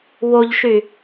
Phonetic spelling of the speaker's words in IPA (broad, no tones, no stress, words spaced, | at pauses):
woʎʃy